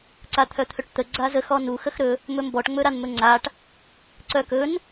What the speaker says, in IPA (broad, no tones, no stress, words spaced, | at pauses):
ǀat̪ʰœt̪ʰɵʈt̪ə ɡ͡ǀazə xɔnu xəxɾɵ | mɵmbɔʈ ŋ͡mɵɾanmɵŋ͡ǀaʈ | ǀœkɵn